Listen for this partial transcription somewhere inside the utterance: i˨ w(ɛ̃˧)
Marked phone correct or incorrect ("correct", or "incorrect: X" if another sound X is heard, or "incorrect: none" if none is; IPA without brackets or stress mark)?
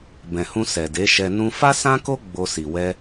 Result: incorrect: ɛ˧